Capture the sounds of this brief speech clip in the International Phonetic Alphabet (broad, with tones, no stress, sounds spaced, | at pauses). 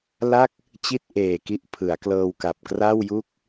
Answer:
l a˥˩ k̚ | t͡ɕ i˥˩ t̚ ʔ eː˨˩ k i˦˥ ʔ pʰ ɯ˩˦ a̯ k l ɤː˧ w k a˨˩ p̚ k r a˥˩ w j u˥˩ k̚